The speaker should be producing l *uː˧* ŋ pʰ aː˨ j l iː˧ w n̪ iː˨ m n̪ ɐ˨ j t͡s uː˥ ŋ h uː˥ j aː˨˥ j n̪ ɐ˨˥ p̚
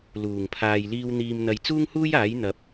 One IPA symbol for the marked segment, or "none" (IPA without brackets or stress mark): uː˨˩